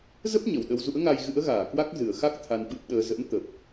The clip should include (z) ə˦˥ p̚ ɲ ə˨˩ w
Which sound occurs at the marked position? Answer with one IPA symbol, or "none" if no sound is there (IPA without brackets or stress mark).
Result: z